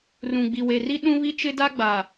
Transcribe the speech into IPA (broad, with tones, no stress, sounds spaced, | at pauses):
r ũ˨ ɡ͡b i˨ w e˨ r i˦ ɗ ũ˦ β i˦ t͡ʃ ɪ˦ d a˦ ɡ͡b a˨